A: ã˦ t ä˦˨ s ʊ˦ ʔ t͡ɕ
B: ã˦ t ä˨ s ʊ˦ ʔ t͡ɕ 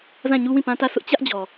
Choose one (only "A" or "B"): A